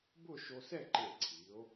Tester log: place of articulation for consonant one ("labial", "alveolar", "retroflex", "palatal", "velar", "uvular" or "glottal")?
labial